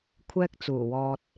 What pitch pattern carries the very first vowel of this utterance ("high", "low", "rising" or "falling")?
high